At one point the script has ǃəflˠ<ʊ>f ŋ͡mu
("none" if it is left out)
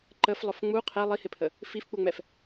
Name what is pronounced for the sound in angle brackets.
ʊ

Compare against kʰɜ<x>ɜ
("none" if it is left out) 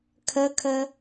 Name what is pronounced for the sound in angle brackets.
kʰ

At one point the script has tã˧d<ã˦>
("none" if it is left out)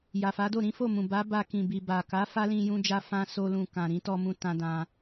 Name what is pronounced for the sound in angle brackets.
ã˧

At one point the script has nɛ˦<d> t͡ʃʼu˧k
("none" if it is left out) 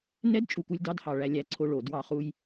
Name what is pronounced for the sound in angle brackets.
d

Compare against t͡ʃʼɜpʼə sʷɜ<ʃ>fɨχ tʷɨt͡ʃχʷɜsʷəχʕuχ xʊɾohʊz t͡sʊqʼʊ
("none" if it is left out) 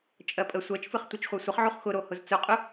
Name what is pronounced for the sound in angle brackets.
t͡ʃ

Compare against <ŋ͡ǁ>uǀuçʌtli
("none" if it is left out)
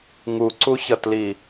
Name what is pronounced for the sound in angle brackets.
ŋ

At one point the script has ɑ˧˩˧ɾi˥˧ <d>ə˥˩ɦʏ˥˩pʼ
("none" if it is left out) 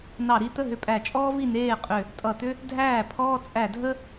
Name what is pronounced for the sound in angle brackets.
t̪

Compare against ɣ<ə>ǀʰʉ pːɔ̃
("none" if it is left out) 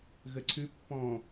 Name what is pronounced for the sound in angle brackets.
ə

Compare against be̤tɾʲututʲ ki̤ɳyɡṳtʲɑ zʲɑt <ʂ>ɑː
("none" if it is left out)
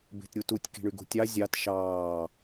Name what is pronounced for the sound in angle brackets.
ʃ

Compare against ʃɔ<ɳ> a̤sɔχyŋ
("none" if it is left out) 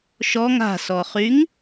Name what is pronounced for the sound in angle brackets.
ŋ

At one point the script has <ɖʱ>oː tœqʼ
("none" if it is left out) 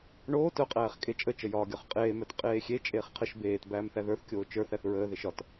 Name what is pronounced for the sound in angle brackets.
ɳ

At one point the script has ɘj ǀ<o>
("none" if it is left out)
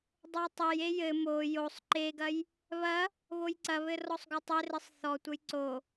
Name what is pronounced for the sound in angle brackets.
o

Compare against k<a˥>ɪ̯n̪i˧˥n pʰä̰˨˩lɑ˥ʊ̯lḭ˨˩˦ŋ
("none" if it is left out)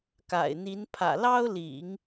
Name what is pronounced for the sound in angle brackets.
a̰˨˩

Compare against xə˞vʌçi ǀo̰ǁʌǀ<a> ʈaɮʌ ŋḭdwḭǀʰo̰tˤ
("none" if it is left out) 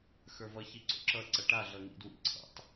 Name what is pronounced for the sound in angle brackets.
ʌ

